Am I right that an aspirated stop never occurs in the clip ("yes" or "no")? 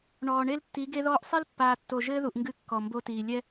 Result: yes